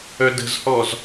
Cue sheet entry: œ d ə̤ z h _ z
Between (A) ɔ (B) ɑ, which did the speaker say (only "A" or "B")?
A